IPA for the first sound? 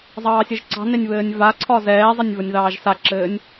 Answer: zˤ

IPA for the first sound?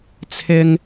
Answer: t͡sʰ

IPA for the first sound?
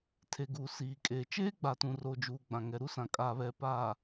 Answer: tʰ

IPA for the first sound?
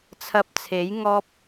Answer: t͡sʰ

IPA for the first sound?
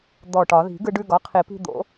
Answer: d̪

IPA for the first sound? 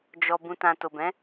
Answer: d͡ʒ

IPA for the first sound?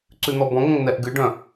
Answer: ǀ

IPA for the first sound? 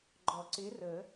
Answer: ɡ͡ǃ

